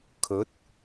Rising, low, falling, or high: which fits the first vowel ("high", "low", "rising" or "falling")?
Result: rising